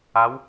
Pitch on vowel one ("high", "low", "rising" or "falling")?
rising